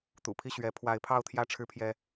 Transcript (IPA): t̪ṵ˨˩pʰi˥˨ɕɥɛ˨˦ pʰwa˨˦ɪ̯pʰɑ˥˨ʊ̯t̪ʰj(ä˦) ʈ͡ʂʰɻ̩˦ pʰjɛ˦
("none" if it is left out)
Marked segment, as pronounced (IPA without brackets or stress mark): ä˥˨